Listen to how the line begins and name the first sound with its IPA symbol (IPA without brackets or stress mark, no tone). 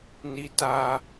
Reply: n